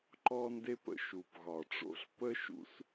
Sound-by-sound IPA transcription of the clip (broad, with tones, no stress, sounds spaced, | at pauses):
ǃ ɔ˥ n d e˥ p ə̰˥ ʃ u˩ p ɣ ɒ˩ ʈ͡ʂ o̰˥ ɬ p ə˥ ʃ ṵ˥ s